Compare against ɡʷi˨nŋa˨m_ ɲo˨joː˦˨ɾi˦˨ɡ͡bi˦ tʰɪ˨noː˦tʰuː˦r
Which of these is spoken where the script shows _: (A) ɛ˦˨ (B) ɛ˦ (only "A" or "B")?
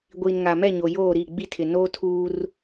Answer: A